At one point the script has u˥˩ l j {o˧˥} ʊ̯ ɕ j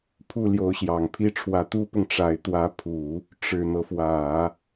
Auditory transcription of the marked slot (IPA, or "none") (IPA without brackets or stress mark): o˧˥